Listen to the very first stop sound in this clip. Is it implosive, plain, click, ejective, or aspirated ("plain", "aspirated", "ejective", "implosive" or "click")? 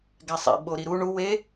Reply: plain